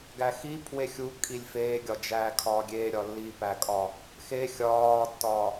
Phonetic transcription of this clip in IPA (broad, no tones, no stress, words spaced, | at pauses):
ɡæxi pʰwexʲu kʼilʲfeːɡʲɒd͡ʒæː kʰɒːɡʲe ɾʲɒlːipækʼɒ | xe xʲɒːtːɒː